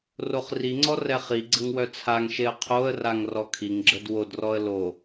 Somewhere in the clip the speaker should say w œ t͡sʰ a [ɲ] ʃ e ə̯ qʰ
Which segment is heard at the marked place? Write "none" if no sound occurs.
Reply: ŋ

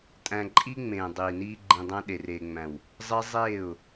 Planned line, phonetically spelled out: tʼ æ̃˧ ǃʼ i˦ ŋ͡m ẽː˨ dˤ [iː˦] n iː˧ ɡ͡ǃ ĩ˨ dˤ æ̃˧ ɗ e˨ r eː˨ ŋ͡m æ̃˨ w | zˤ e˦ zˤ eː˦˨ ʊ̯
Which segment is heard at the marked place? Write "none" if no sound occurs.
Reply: iː˨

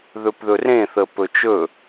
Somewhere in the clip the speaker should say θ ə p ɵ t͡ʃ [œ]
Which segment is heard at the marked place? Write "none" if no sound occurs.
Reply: ɵ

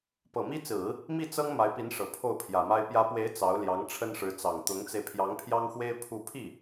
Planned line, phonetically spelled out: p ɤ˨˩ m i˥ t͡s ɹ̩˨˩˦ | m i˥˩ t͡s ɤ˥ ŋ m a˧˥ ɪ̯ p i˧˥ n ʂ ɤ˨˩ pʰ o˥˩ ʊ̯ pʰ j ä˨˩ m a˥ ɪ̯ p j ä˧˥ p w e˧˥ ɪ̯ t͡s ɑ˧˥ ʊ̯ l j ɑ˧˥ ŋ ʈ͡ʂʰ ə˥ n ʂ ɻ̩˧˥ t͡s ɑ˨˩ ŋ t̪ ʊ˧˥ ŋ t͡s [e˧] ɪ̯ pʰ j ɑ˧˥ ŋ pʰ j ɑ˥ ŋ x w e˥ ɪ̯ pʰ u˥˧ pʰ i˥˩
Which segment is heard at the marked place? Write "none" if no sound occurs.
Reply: e˧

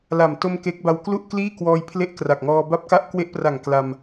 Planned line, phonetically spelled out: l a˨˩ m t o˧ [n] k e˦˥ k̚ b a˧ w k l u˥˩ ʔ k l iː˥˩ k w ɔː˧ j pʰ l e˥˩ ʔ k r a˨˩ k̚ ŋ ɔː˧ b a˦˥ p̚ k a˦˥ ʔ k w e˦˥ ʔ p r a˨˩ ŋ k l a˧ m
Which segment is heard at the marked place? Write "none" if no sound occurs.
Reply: m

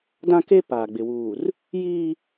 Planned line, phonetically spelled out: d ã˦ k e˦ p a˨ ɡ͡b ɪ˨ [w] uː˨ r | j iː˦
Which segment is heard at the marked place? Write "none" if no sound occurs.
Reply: w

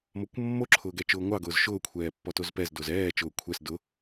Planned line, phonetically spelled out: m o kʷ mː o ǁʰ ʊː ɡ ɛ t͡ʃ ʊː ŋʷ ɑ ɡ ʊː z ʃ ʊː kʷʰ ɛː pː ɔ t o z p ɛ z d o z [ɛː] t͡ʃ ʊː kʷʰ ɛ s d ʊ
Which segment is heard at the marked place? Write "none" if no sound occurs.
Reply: ɛː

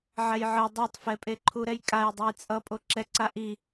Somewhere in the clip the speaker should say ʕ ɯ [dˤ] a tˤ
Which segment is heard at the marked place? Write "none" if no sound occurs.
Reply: dˤ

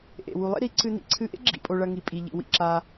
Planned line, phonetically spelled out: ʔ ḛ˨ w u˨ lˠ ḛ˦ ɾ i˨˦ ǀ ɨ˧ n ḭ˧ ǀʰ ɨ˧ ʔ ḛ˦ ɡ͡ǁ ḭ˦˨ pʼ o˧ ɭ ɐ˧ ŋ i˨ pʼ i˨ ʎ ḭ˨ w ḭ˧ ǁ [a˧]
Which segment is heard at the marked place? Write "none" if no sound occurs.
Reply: a˧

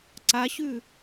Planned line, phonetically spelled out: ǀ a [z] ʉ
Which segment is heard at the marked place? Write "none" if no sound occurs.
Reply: ɕ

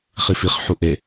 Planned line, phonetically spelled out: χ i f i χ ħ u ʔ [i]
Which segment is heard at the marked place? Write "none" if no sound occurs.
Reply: e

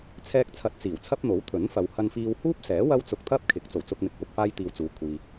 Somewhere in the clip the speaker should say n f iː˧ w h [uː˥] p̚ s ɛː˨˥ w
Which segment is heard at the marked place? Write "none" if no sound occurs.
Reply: uː˥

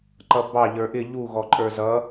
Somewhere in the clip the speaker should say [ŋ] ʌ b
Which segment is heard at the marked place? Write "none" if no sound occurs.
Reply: ǃ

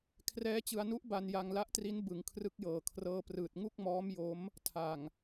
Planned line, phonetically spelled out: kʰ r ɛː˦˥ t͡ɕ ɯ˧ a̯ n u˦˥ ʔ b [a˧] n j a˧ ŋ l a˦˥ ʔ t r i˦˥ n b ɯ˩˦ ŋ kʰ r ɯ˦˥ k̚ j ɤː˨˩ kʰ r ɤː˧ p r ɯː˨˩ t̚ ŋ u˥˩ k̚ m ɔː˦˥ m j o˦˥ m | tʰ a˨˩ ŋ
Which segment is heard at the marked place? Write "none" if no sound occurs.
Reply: a˧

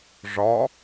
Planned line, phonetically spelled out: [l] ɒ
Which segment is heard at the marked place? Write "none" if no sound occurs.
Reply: ʐ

